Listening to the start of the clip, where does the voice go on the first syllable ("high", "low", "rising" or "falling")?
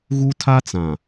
high